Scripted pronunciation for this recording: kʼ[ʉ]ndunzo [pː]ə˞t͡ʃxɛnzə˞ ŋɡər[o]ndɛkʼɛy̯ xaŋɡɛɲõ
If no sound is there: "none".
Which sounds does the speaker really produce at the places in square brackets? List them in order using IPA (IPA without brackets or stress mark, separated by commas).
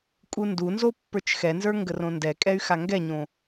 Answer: u, pː, õ